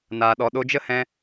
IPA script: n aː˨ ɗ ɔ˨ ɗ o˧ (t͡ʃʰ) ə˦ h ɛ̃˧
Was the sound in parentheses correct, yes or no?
no